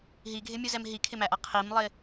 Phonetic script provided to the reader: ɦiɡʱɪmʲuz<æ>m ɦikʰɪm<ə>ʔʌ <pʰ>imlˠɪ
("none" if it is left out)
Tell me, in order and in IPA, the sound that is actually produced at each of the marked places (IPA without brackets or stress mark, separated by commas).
ɛ, æ, qʰ